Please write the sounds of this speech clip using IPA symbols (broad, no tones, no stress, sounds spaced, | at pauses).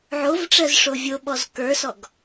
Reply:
ʕ o v ʈ͡ʂ ɜ z ʂ o vʲ o ɓ ɔ z k ə˞ s ɔ ɡ